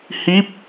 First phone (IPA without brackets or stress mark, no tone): h